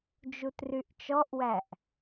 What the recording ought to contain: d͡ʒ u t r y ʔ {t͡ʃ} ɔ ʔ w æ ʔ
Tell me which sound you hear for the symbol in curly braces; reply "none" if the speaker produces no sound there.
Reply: t͡ʃ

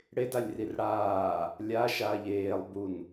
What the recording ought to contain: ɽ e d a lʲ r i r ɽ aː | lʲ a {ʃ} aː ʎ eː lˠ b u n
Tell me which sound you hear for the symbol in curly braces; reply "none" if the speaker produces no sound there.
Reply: ʃ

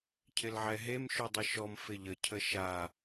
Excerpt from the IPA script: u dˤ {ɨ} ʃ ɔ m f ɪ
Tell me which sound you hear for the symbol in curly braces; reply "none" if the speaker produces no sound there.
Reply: ɪ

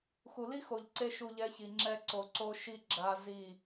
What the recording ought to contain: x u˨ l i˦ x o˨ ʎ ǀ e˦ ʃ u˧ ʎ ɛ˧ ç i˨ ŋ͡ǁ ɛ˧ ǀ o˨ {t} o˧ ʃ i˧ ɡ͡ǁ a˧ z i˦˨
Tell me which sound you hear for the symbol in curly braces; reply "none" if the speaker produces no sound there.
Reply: ǀ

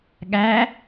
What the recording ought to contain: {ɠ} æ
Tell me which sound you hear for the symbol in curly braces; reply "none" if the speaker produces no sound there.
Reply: ɠ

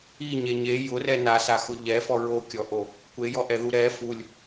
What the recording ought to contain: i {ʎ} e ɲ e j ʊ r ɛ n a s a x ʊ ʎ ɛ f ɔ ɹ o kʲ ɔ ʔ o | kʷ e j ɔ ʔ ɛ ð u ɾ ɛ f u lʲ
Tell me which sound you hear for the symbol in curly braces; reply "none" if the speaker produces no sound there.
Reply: ɲ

